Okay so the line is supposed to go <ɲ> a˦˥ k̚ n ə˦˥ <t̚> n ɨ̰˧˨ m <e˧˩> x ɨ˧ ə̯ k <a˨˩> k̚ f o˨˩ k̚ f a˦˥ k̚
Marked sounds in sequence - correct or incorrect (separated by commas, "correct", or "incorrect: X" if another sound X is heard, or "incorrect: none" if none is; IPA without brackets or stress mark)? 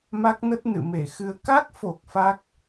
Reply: incorrect: m, correct, correct, incorrect: a˦˥